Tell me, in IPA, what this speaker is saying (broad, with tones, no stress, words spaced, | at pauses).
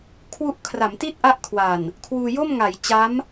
kʰwu˥˩ʔ kʰra˩˦mti˥˩t̚ʔa˦˥ʔ kʰwa˨˩n | kʰwuː˧jo˥˩mŋa˩˦j t͡ɕa˦˥m